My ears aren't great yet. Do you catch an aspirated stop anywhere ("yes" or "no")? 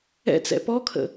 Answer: yes